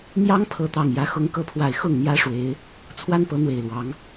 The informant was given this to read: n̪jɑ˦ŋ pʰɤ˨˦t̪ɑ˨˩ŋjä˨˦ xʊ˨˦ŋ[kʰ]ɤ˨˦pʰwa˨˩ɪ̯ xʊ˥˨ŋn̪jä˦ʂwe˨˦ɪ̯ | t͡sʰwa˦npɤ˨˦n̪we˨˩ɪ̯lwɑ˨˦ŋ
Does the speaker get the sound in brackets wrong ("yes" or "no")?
yes